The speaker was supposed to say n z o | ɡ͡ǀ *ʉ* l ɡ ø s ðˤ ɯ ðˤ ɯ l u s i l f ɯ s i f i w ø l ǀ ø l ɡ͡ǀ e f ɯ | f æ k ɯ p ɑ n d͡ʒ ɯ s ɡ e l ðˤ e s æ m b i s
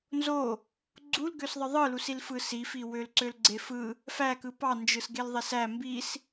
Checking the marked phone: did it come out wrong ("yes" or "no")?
yes